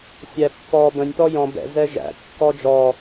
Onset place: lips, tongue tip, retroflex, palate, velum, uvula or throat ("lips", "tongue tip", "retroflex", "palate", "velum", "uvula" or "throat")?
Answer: tongue tip